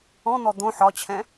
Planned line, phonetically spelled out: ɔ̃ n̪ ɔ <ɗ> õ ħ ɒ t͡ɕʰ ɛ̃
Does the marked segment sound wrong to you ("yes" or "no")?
yes